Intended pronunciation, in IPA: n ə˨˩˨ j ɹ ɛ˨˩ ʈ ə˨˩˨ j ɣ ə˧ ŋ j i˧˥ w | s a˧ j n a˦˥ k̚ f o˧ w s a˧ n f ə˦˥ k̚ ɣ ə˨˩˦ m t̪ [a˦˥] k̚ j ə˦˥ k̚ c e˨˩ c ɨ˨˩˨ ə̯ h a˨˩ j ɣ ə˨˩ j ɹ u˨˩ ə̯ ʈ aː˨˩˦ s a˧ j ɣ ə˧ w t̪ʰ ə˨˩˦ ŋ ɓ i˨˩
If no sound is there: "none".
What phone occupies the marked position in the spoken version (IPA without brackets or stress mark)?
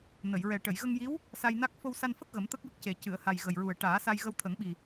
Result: ə˦˥